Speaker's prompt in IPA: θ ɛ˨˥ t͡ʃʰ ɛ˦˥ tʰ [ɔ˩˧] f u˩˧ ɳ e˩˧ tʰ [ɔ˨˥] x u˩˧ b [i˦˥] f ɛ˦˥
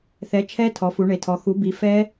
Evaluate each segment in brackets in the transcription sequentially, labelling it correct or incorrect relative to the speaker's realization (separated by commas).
correct, incorrect, incorrect